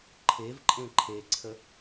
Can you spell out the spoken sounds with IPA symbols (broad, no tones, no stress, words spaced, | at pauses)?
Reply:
ǃʰevǃʼẽ ǃʰeǀʰə